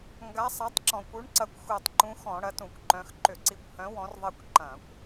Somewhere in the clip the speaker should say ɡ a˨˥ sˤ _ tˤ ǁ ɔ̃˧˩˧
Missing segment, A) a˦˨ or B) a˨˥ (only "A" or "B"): B